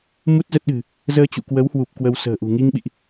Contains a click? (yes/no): no